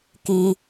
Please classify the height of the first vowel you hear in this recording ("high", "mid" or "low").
high